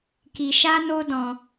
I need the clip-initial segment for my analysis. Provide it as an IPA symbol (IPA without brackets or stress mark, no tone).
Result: k